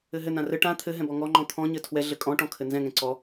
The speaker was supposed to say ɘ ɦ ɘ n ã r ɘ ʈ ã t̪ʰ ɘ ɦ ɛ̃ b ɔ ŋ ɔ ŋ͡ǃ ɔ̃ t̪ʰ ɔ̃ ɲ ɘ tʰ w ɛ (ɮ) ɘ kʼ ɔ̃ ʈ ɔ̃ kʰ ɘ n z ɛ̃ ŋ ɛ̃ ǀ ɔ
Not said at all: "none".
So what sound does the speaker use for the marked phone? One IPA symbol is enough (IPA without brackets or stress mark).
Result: ɮ